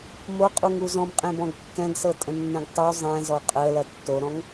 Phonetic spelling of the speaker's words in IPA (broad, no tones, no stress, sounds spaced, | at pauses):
m o qʼ u ŋ u z ɔ̃ m qʼ ẽ b ɔ̃ ɡ kː ɛ̃ ɡ s ɤ tʼ ə̃ nː ə̃ ɡ tˤ u zˤ ɛ̃ z ɔ qʼ ə l ɐ tː o ɾ ɔ̃ ŋ